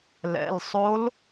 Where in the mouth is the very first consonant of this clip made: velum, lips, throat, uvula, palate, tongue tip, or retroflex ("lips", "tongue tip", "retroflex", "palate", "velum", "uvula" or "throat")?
tongue tip